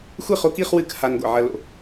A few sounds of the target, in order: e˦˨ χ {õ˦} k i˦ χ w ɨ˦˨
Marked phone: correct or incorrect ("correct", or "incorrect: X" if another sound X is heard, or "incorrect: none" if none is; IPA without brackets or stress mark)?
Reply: incorrect: o˦